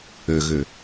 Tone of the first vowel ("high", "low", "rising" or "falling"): low